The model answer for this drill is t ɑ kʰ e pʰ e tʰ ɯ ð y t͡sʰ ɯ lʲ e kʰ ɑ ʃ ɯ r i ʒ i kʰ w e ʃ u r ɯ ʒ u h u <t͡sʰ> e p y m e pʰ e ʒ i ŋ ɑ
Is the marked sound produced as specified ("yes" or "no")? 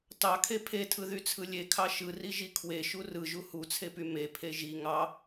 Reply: yes